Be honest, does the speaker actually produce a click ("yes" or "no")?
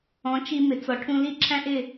yes